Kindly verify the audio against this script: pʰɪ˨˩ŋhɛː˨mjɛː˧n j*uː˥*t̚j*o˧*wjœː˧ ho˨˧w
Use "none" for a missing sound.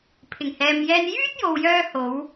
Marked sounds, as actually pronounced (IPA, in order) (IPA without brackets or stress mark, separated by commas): yː˥, o˨